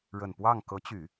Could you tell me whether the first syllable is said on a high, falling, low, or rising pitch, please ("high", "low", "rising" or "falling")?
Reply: low